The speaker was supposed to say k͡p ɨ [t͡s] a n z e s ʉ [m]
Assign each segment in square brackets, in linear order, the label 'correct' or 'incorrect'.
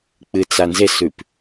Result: correct, incorrect

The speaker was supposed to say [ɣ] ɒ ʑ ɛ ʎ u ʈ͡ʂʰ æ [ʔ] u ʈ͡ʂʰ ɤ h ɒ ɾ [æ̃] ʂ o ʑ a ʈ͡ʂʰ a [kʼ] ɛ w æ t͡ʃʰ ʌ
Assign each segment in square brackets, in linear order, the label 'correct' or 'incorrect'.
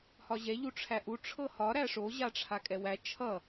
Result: incorrect, correct, incorrect, correct

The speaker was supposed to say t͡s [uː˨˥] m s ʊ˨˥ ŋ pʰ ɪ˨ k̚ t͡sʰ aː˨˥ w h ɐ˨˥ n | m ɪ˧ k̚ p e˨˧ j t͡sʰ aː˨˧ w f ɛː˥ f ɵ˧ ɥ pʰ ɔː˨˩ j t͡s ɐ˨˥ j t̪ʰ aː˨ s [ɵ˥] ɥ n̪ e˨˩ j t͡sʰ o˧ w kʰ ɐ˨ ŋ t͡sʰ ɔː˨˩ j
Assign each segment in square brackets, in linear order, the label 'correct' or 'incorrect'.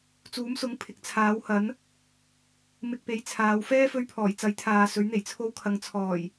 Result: correct, incorrect

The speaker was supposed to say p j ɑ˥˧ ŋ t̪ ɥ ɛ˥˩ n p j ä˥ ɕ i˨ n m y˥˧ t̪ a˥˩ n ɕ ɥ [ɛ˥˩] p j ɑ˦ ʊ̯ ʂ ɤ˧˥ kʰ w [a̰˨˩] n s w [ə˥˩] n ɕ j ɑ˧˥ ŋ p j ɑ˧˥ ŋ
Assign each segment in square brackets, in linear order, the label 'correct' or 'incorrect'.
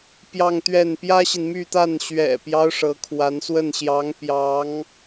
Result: incorrect, incorrect, correct

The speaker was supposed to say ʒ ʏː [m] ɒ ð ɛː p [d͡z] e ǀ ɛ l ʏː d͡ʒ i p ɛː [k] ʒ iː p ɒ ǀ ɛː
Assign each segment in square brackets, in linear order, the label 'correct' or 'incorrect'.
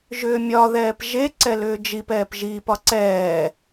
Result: incorrect, incorrect, incorrect

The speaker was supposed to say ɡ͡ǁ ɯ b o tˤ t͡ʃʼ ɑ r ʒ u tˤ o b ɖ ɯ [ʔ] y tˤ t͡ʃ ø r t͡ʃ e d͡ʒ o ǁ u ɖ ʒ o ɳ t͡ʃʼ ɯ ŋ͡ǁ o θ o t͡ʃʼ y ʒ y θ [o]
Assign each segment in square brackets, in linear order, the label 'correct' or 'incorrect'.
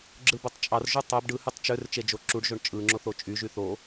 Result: incorrect, correct

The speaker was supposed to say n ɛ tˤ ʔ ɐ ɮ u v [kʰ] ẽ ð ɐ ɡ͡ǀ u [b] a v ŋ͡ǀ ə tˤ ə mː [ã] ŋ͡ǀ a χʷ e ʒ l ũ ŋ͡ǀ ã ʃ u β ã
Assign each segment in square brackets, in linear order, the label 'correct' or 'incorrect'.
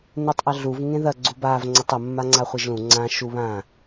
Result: incorrect, correct, incorrect

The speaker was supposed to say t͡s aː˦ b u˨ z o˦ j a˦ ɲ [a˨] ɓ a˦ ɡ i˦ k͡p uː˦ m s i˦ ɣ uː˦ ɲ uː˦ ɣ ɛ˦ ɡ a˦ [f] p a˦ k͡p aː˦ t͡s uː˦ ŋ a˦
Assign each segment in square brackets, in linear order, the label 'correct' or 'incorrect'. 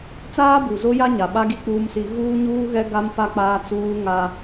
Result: correct, incorrect

